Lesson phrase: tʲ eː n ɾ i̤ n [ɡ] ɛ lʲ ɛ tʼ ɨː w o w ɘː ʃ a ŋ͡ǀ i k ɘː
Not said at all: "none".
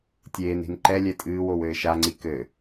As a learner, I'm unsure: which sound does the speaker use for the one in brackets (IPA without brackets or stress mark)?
ǃ